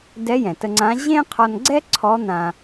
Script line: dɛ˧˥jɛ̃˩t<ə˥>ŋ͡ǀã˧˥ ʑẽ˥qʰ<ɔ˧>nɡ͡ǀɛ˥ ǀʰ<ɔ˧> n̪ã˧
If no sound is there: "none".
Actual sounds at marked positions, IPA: ə˧, ɔ˧, ɔ˧˥

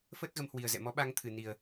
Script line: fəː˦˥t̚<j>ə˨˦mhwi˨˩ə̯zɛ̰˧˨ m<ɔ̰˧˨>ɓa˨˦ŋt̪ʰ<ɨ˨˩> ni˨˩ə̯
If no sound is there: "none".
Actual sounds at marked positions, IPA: ɣ, ɔ˨˦, ɨ˨˩

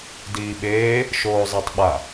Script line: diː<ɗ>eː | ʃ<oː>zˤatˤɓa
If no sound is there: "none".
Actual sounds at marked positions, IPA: ɓ, oː

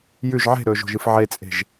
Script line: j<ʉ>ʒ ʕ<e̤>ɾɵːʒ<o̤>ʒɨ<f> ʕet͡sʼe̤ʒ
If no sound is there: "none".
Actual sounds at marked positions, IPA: ʉ, e̤, o̤, f

